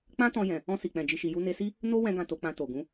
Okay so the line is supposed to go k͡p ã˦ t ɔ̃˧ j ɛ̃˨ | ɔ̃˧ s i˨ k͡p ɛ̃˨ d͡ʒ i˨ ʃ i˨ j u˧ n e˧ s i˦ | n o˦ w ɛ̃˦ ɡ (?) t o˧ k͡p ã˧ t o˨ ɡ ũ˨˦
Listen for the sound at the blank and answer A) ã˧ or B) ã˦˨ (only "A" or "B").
B